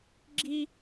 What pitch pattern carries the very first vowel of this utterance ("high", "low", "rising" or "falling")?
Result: high